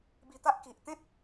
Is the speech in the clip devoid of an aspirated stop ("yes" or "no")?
yes